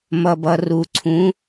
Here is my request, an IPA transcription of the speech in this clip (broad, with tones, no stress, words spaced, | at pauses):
mʌ˨bʌ˨ru˨ǀʰũ˨˦